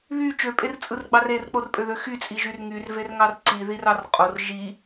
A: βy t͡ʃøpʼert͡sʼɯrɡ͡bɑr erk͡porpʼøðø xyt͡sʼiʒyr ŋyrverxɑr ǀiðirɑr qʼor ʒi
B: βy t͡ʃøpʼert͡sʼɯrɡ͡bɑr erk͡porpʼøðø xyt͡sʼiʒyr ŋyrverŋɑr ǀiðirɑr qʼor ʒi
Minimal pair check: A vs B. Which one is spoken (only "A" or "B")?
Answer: B